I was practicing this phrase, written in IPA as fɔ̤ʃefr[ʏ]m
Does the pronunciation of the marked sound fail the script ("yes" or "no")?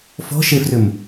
no